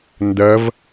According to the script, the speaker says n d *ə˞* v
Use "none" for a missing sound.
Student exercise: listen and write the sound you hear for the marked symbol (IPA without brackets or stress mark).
ɜ